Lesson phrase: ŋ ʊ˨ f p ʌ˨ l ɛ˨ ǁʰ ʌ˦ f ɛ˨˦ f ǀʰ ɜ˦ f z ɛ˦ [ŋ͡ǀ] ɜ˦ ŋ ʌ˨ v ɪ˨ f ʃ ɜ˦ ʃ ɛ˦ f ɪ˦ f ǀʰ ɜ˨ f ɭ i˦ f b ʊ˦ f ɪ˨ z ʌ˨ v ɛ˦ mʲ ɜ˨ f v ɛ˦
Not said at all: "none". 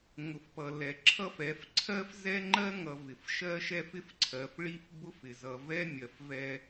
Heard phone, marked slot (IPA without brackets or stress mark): ŋ͡ǃ